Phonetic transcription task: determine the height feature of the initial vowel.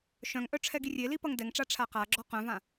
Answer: mid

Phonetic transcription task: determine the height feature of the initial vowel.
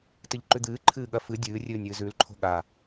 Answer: high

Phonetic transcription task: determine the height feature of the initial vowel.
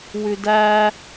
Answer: high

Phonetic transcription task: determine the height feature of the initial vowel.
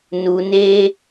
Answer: high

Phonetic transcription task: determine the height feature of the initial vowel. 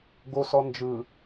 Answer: mid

